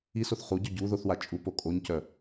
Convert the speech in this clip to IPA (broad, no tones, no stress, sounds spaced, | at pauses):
i s o θ χ u ɟ œ ɟ u ð o θ w a t͡ʃʼ u p o kʼ o ɲ c œ